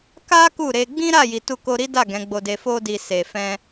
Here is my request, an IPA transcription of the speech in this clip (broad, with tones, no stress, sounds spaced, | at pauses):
k a˦ k u˦˨ ɾ e˧ ɡ͡b ĩ˦ ɾ a˦˨ j i˨ t u˧ k o˧ ɾ i˦ d a˦˨ ɡ ɛ̃˨˦ ɡ͡b o˧ d e˧ f o˧ d i˨ s e˨ f ɛ̃˧